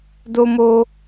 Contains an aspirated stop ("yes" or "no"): no